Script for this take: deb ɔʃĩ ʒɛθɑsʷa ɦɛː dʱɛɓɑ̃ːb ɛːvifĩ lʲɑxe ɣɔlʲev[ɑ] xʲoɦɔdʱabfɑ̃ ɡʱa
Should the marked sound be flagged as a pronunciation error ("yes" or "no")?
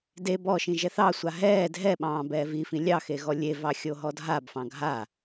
no